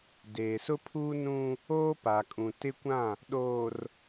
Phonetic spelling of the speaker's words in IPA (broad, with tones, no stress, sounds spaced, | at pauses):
d eː˨ s ʊ˦ pʰ uː˦ n ũ˦ | oː˦ p a˨ kʼ ũ˨ t ɪ˦ kʷ ã˦˨ | ɗ oː˨ r